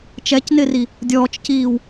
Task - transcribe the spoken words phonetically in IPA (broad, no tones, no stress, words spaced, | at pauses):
t͡ʃɛcnɪri | dʲɔːt͡ʃciːw